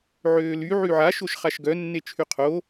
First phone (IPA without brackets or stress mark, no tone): ʕ